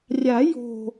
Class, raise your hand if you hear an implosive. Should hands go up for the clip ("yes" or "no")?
no